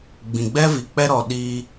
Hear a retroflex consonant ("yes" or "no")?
no